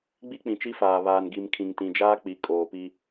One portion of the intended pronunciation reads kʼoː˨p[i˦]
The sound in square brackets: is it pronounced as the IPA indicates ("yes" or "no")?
yes